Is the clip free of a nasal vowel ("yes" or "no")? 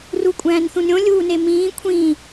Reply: no